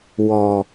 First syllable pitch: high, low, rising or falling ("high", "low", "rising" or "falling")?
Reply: low